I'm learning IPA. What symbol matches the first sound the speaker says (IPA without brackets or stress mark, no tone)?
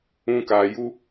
ũ